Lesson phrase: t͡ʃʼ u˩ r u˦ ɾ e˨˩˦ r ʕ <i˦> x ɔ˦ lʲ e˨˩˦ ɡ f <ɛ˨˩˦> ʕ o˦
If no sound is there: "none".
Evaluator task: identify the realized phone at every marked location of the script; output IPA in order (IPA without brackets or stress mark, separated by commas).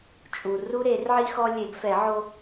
i˦, ɛ˨˩˦